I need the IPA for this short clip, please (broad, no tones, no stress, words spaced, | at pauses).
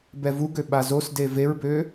bɛvuɡø ɓazosde veɹbø